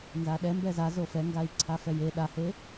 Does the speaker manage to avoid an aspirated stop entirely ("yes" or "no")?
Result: no